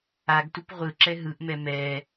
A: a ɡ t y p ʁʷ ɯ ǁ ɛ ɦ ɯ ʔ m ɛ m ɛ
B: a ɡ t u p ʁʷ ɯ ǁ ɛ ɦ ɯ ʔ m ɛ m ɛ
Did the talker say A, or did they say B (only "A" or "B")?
B